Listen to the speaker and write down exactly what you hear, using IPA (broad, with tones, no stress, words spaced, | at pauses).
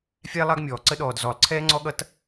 fʲæ˦lˠɑ˦ɡmʲɔː˩ ǀə˦ɗɔː˩d zɔ˩lˠ ǀʰɛː˦ŋ͡ǀɔ˦ɠʌ˦t